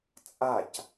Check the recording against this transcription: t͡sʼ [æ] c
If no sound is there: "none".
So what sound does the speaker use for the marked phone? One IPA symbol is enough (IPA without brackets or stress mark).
a